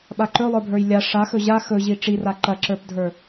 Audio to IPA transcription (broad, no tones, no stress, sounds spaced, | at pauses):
ɓ a ǃ ɵ lˠ ə˞ bʱ ə˞ j lʲ a ʂ a x ɵ ʑ a x ɵ ʑ i ʈ͡ʂ i r a ǃ ɐ ǁ ə˞ p dʱ ə˞